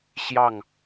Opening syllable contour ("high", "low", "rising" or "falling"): falling